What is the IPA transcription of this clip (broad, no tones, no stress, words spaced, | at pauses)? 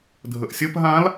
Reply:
dʱəʔsʲəp ɦãl